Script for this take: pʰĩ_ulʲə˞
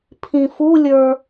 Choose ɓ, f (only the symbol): f